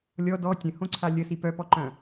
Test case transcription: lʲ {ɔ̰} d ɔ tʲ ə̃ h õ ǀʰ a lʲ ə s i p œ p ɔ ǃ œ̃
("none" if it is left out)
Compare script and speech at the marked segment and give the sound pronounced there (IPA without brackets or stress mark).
ɔ